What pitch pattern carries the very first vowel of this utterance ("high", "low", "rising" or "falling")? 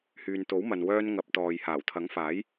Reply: low